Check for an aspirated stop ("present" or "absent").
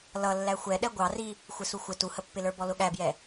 absent